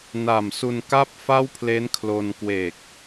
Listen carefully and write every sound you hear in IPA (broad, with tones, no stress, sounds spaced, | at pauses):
n a˨˩ m s u˧ n k aː˥˩ p̚ f a˥˩ w pʰ l e˦˥ n kʰ l o˧ n k w e˨˩ k̚